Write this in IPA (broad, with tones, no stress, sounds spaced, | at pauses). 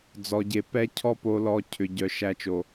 d͡z ɔ˨ ɟ e˨ p ɛ˦ cʰ ɔ˦ p o˨ l ɔ˨ cʰ ʏ˨ ɟ œ˨ ʃ æ˨ t͡ʃ o˨